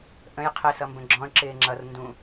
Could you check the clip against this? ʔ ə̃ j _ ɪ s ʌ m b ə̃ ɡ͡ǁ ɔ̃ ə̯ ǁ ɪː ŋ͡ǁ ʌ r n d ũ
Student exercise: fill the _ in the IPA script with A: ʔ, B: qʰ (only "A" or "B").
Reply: B